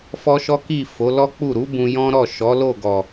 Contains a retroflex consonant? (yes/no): no